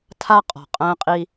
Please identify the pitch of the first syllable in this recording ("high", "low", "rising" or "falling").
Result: high